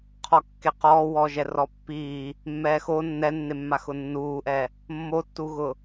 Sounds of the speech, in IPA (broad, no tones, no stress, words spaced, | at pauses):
qʰɔkːeqɔː wɔːʒɛrɔpːiː | mːɛːxo nːɛnːemːa xʊnːuːʔɛ | mːotːuɣʊ